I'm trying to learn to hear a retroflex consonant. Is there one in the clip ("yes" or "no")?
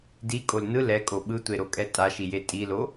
no